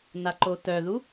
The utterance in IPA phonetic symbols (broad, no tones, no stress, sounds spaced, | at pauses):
n a ǃ o t œ ð u